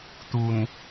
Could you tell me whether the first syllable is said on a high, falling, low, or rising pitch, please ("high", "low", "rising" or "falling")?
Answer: low